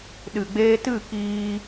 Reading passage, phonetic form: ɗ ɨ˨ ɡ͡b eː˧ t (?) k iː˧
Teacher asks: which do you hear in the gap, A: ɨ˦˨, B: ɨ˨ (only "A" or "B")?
A